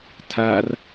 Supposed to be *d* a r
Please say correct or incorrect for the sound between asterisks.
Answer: incorrect